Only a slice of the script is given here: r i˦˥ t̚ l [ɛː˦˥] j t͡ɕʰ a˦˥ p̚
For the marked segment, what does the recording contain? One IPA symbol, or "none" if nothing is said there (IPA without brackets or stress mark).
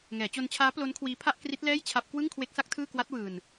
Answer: ɛː˥˩